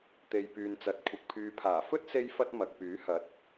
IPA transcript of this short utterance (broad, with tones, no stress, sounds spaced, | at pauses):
t̪ e˨ j p yː˨ n t͡s ɐ˨ t̚ kʷʰ ɐ˨ k̚ pʰ yː˨ pʰ aː˨˩ f ɵ˥ t̚ s e˥ j f ɐ˥ t̚ m ɐ˨ k̚ p yː˨˥ h ɐ˨˥ t̚